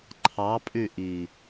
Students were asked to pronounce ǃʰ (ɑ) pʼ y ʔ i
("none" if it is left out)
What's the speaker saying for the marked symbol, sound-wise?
ɑ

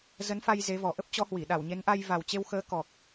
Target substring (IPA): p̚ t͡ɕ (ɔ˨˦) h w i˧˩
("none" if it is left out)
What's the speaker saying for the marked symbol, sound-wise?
ɔ˨˦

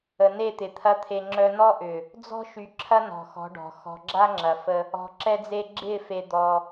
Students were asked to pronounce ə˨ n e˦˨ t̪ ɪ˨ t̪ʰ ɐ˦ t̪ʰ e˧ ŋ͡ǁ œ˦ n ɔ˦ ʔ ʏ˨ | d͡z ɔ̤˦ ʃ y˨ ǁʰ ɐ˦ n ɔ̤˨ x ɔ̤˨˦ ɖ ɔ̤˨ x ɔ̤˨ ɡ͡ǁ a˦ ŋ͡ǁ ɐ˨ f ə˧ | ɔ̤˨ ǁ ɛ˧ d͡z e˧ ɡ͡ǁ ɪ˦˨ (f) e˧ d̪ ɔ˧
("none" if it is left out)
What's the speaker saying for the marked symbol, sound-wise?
f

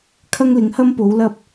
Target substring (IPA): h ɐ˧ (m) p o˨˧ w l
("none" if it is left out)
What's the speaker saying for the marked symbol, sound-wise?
m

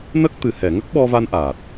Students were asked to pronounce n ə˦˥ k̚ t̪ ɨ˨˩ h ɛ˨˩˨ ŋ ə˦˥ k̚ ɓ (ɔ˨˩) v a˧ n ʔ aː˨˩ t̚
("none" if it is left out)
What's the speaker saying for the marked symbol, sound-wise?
ɔ˧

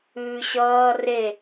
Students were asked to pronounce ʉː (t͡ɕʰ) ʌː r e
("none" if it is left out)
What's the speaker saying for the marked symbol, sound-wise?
ɕ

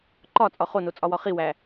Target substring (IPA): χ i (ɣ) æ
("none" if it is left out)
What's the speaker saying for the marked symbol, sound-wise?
w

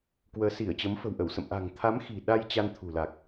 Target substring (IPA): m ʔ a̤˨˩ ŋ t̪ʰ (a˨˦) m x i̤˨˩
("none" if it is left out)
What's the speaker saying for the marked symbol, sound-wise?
a˨˦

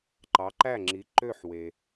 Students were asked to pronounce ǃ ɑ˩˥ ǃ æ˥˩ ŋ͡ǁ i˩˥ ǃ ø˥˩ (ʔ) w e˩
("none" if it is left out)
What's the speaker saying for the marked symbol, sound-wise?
ħ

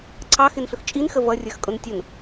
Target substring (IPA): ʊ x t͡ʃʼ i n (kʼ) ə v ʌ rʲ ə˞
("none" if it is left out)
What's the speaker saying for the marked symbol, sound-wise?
x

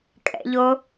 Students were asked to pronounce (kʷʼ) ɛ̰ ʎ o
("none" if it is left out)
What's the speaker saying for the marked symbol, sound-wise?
kʼ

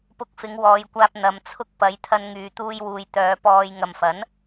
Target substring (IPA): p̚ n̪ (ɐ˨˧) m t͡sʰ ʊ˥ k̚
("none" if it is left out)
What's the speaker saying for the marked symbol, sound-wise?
ɐ˨˧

